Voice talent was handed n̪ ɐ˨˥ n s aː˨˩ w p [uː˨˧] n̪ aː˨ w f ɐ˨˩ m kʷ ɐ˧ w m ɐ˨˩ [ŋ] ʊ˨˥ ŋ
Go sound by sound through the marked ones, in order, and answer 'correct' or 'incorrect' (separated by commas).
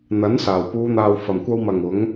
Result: correct, correct